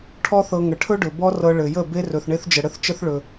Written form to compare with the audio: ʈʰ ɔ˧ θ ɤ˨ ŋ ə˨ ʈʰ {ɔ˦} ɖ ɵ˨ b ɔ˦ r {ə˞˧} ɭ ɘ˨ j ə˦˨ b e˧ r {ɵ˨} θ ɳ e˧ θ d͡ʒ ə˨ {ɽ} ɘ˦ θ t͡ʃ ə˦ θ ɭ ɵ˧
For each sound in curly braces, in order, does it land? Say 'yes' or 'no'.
no, no, yes, yes

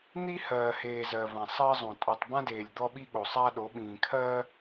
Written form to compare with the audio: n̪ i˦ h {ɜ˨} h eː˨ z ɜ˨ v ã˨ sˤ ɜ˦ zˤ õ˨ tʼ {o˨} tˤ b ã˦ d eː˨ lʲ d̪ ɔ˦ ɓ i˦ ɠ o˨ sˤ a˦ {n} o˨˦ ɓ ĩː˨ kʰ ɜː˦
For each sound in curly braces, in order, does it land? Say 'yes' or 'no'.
no, yes, no

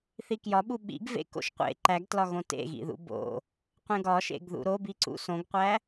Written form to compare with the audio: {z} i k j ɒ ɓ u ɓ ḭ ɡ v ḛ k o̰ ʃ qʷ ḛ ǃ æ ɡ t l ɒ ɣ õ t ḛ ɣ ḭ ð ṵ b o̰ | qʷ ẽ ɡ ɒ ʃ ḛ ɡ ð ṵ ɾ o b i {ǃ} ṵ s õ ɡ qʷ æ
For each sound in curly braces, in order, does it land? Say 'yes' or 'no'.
no, no

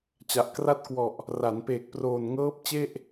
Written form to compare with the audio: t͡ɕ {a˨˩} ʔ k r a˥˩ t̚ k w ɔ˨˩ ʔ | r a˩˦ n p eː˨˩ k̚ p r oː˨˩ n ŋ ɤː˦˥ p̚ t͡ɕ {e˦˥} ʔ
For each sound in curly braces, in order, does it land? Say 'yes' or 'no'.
yes, no

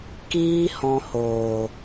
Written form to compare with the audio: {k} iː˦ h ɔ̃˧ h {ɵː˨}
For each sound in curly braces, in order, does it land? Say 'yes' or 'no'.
yes, no

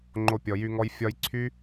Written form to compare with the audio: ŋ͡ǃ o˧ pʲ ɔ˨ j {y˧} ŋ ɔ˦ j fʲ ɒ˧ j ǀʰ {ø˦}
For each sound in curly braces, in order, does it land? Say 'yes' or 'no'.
yes, no

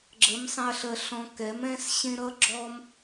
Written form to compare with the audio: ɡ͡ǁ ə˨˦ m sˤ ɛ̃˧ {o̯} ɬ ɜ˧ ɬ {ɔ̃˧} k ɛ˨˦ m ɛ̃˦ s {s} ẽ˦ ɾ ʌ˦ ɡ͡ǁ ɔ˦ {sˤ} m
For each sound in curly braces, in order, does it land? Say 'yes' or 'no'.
no, yes, no, no

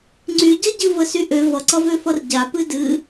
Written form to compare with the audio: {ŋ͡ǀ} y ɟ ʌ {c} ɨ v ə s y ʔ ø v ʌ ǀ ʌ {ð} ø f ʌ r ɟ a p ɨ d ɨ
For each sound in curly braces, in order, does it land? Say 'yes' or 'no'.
yes, no, no

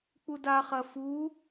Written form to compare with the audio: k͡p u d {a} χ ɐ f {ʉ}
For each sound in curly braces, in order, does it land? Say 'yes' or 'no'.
yes, no

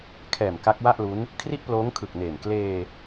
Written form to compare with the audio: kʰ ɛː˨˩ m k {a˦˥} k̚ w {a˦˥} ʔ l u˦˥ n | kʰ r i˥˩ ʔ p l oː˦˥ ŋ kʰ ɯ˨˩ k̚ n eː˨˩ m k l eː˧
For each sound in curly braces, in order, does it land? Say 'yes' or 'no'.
yes, no

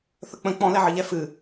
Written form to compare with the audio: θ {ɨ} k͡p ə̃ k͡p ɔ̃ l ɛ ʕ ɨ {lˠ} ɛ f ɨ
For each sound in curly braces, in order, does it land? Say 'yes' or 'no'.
no, no

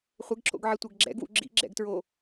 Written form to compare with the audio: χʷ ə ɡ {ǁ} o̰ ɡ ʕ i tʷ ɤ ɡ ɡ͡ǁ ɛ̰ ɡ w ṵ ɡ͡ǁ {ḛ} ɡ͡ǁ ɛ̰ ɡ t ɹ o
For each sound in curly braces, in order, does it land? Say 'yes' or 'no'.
yes, no

